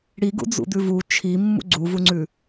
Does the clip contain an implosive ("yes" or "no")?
no